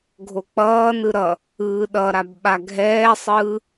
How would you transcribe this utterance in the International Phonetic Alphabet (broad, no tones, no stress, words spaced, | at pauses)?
ɡʱok͡pʌːnɯ ɾʌ | ɯːɗʌɾab ɓaɡʱɛːsˤɯː